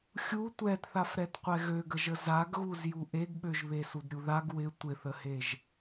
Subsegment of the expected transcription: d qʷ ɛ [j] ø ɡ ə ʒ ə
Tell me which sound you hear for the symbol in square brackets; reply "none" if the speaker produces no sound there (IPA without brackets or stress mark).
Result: ɣ